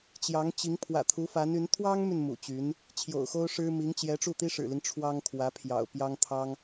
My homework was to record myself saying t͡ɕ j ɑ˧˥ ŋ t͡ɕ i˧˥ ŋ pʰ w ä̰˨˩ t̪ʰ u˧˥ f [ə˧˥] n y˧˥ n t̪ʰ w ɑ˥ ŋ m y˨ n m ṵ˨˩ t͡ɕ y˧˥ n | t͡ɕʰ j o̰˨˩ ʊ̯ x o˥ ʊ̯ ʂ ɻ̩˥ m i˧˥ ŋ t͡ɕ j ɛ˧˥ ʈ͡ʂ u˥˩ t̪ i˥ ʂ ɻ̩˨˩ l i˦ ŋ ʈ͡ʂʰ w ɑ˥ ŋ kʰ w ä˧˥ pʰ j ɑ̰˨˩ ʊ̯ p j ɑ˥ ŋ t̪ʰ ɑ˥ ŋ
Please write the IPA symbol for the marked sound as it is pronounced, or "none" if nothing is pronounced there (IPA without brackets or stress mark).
a˧˥